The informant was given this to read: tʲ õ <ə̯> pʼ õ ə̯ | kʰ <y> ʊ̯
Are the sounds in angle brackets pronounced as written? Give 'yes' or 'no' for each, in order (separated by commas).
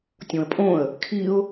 yes, no